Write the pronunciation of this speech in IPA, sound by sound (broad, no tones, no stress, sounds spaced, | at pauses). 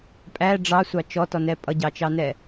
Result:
pʼ æ ɖ͡ʐ ɑ sʷ ɑ t͡ʃ ɔ t ɔ n ɛ pʼ ʌ ɟ ɑ t͡ʃ ɑ n ɛ